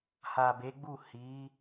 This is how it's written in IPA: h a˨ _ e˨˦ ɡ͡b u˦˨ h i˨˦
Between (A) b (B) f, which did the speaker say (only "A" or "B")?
A